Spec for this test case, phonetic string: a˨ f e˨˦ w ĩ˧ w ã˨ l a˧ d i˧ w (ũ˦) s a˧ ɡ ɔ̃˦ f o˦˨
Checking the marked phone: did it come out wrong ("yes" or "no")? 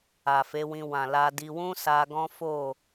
no